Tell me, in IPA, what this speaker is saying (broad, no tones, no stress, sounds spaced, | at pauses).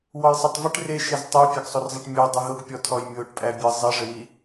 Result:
w ɔ j sˤ a tˤ v ɨ ʈ r e ʃ e z tˤ ɘ j pʲ æ ɡ sˤ o r zˤ ɛ ʈ mʲ o dˤ ɨ ɦ ʊ ɡ pʲ ɔ tʰ ɔ j mʲ o ʈ pʼ æ bʲ ɨ zˤ e ʐ ɘ w i